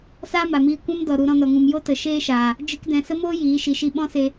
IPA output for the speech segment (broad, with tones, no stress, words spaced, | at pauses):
saː˦ma˨miː˧ kʷɛ̃˦mdɔ˨ ɾu˧ɾɔ̃˧ nɔ˨ŋũ˨mjo˦ tə˨ʃeː˦ʃaː˨ | d͡ʒɨ˦kdɛ̃˧ sə˦moː˦ jiː˨˦ ʃi˨ʃi˧ ɓɔ̃˦se˧